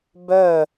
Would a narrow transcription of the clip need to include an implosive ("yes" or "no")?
no